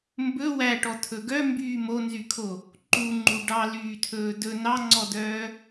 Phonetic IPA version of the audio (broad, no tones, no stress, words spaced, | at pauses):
mbɵ wæʈɔtʰɵ ɡœmbyː monzykʰo | ǃuŋ͡ǃu ɖɑlyːtʰɵː dɵ nɑŋ͡ǀɔdœː